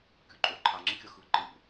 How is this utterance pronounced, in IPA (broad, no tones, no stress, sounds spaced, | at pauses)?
kʲ u ǃʼ o ǃʰ a ŋ͡ǁ i kʲ ʌ x ɯ ǃ ɯ ɾʲ ṵ